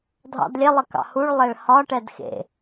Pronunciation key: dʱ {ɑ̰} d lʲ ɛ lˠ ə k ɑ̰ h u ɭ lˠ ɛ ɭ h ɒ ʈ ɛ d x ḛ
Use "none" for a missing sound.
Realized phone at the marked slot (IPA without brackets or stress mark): ɑ̰